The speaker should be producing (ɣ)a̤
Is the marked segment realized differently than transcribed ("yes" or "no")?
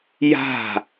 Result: yes